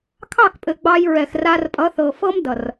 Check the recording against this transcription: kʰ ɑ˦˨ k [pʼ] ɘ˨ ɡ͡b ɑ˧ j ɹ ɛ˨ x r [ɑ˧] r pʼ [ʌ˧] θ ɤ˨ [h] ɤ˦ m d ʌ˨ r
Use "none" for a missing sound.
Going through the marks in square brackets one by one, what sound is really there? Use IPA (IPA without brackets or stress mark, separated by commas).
pʼ, a˧, ʌ˨˦, f